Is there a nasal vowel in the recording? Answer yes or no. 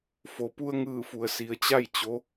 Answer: no